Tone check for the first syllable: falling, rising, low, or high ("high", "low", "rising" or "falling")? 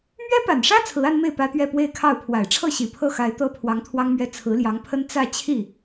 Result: high